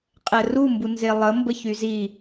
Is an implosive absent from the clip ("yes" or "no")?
yes